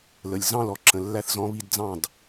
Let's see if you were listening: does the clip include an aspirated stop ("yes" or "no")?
no